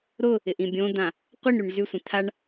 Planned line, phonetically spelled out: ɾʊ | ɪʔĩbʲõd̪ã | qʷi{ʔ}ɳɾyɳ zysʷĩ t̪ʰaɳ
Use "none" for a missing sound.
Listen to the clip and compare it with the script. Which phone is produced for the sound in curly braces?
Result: none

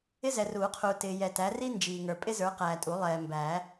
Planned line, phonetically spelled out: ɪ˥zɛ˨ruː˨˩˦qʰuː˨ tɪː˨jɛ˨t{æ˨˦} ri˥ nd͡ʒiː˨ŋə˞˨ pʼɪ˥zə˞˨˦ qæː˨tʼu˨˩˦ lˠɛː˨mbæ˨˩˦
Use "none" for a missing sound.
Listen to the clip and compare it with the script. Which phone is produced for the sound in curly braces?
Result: æ˨˦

